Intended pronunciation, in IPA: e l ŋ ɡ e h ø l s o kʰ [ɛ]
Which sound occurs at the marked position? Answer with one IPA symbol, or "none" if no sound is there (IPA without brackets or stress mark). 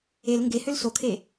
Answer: e